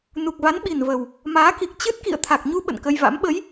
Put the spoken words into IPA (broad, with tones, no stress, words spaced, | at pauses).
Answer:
nu˨˩k̚va˨˦nɓi˨˩nvə˨˩w | maː˨˦ki˨˩k̚t͡ɕɨ˦˥t̚ kḭ˧˨ə̯t̪ʰa˨˩k̚ɲu˧ ɓə̰˧˨nkə˧jva̰˧˥m ɓə˨˦j